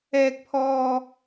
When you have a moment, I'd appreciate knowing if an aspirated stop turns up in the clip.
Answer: yes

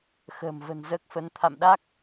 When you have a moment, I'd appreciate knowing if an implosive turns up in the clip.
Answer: yes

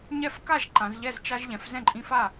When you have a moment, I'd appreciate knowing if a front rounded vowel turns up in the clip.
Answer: no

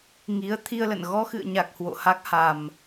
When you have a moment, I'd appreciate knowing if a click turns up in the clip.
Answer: no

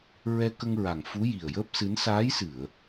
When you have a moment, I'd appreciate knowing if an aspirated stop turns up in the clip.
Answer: no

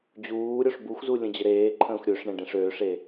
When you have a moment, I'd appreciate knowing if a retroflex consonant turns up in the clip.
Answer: yes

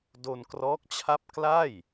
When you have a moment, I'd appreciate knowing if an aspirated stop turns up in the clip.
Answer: yes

